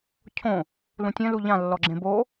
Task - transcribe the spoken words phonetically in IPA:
cʰõ | lũtʲɛ̃ luʎã lːɔɡ͡ǁẽbo

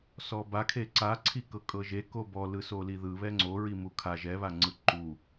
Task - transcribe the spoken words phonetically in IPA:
sɔbakʰe ǀaǀʰi kɤkʼɤʒe kobɔ lɯsoliðɯ βɛŋ͡ǀoɹimu kʰa ʒɛβaŋ͡ǀɯ ǃu

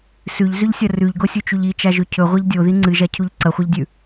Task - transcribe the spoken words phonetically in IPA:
sʉʎzʉʎsʲɐ rʉʎɡosʲut͡ʃuʎ it͡ʃaʒɵ cʰɵʁʷeʎ dʲoði ŋ͡ǀɨʒacʰuʎ ǀɐχʷeʎdʲʉ

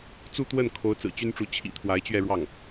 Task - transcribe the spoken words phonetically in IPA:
t͡su˥˧t̪wə˥˩n kʰo˧˥ʊ̯t͡sɹ̩˨˩t͡ɕy˥nʈ͡ʂu˧˥ t͡ɕʰḭ˨˩ t̪ʰwa˧˥ɪ̯t͡ɕɥɛ˥˧ɻwɑ˥˩ŋ

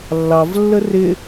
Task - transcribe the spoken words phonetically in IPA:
lːɑvlːə rɪ

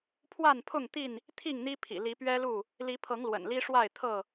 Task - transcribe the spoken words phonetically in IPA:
pʰwa˥˨npʰʊ˥˨ŋt̪i˥˨n | t̪ʰi˥˨ŋn̪i˦pʰḭ˨˩ li˨˦pɥɛ˦lu˥˨ | li˨˦pʰɤ˨˦ŋ lwə̰˨˩nli˦ʂwa˥˨ɪ̯ t̪ʰɤ˥˨

